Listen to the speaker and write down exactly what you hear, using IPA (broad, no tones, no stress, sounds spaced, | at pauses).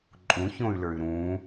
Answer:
ǃʼ ũ ç õ y̯ l ə˞ y̯ ɾ ũ